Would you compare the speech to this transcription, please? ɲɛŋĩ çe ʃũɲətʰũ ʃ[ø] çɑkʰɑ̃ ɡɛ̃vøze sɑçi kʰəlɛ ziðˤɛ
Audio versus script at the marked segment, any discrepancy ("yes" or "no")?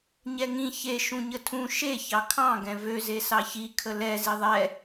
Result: yes